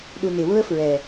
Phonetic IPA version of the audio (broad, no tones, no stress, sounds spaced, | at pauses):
ɗ u n ɪ w ʊ ə̯ f ɹ ɛ